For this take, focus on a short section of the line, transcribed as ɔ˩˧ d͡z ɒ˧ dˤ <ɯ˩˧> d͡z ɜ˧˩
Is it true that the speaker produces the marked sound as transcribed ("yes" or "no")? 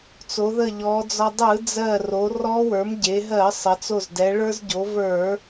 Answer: no